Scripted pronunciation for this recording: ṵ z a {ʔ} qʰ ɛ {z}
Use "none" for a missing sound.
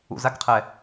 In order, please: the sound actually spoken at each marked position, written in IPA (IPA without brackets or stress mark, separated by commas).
k, none